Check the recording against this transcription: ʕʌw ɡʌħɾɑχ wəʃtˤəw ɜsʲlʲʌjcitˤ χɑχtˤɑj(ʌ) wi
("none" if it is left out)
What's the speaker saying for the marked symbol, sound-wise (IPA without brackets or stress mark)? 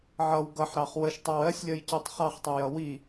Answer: ʌ